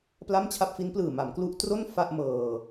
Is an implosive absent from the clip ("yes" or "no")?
yes